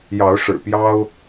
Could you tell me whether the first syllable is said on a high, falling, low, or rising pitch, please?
rising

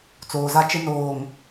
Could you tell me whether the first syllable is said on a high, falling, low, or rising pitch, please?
low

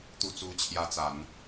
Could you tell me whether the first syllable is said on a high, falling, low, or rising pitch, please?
low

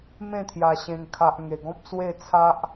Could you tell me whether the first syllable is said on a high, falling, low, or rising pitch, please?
falling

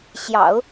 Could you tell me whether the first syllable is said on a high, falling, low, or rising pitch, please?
low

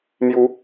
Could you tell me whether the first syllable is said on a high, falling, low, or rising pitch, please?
rising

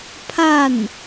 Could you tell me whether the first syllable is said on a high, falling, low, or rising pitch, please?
falling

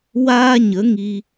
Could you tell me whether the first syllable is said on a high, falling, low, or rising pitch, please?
high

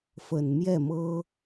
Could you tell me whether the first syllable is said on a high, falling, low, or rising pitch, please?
low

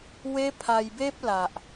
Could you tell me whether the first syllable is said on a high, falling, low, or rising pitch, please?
high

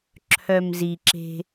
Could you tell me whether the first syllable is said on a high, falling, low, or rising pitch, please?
low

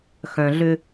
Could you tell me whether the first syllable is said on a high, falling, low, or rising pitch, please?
low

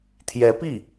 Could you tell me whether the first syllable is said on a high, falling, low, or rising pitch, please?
rising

